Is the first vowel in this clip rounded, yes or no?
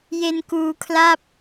no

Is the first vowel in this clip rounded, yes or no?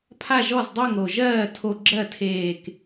no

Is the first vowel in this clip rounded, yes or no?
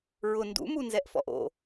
yes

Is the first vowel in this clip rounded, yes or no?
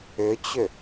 yes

